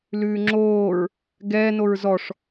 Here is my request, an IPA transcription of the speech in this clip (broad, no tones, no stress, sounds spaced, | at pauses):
l ʉː ŋ͡ǁ oː ɹ | ɡ ɛː n o ɹ z ɔ ʂ